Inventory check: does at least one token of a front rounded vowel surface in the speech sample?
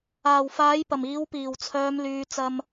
yes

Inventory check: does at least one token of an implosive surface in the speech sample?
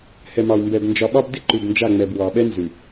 yes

